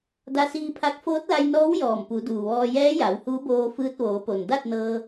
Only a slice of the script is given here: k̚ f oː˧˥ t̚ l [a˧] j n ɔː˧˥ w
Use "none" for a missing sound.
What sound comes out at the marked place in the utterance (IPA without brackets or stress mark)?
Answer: a˧